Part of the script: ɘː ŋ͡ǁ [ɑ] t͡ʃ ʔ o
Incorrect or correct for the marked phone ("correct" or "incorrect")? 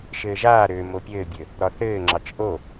correct